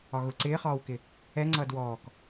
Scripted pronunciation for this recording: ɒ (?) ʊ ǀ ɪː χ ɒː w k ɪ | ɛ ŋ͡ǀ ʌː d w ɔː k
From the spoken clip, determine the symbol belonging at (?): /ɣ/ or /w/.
ɣ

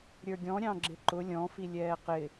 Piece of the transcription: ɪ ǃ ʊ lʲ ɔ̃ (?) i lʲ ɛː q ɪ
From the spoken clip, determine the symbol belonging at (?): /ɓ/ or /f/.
f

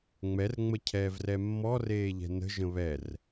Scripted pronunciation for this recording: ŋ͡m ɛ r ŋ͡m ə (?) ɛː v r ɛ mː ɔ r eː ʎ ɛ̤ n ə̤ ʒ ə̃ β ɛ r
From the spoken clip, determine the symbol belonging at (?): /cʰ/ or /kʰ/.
cʰ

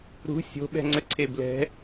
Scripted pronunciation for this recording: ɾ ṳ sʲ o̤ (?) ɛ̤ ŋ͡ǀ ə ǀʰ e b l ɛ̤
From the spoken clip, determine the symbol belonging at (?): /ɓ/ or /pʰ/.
ɓ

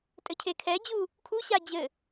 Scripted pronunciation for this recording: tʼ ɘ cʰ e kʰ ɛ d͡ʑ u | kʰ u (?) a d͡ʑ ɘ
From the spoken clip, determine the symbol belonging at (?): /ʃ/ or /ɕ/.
ɕ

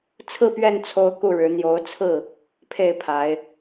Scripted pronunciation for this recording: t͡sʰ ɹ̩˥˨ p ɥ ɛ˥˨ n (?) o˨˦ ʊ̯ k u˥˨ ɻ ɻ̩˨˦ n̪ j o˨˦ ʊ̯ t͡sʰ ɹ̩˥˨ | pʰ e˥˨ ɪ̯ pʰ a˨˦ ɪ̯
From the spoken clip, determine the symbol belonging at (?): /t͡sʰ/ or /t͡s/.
t͡sʰ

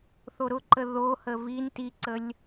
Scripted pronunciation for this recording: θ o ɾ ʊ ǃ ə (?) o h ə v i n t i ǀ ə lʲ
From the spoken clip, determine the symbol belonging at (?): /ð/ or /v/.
ð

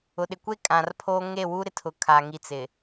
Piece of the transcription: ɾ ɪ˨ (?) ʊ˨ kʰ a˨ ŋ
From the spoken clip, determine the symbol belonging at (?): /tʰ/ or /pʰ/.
tʰ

